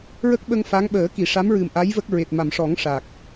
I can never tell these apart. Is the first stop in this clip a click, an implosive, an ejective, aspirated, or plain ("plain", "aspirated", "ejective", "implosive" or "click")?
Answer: plain